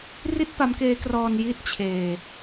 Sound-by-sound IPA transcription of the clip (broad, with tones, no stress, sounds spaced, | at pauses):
r i˥˩ t̚ p a˦˥ m k eː˦˥ k r ɔː˧ n j i˥˩ t̚ t͡ɕʰ eː˧